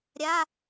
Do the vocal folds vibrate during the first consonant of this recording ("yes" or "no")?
yes